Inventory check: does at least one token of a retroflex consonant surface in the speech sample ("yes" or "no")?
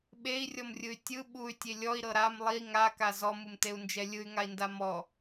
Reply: no